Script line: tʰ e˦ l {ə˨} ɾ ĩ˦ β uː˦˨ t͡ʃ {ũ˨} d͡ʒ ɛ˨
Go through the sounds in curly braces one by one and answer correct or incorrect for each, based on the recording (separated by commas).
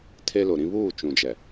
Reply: incorrect, correct